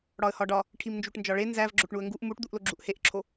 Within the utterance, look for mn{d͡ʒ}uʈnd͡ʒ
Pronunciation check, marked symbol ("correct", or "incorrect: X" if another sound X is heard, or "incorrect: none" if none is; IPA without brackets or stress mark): correct